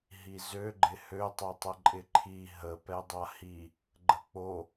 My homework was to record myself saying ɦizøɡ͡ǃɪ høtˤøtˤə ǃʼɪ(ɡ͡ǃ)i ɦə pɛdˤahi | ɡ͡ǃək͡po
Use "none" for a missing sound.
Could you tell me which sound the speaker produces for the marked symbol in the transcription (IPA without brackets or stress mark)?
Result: ǃʰ